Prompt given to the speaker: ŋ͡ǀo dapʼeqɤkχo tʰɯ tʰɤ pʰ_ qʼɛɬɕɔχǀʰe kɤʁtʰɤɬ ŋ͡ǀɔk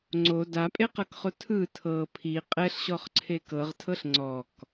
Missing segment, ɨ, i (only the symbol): i